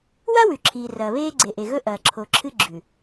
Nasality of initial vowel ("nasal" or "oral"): oral